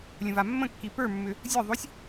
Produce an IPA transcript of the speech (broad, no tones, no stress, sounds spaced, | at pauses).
lʲ ə̃ v a mː ə̃ kː i p ə˞ mː ʏ | zʲ ə˞ ðˤ o sʲ